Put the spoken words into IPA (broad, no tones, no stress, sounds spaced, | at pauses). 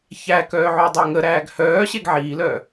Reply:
ç æ k œː ʕ o dˤ əː ŋ ə ɾ æː ɡ h œː ɕ e ɡ ʕ iː l œ